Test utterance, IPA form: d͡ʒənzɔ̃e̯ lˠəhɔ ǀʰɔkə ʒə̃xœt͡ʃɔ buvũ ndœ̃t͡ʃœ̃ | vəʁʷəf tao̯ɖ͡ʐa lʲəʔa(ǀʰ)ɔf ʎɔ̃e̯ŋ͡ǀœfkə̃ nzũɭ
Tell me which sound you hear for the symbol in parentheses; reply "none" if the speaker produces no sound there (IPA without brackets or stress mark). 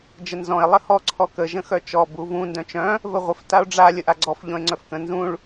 ɡ͡ǀ